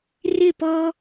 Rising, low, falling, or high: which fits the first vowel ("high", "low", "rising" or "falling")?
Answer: falling